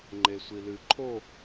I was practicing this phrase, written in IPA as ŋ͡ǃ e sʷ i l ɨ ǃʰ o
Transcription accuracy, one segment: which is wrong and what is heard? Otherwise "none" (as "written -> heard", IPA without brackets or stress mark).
none